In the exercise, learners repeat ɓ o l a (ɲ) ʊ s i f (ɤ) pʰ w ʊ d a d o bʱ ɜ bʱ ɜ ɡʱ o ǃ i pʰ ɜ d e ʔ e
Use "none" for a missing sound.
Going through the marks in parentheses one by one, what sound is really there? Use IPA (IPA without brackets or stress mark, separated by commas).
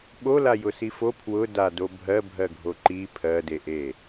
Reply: j, o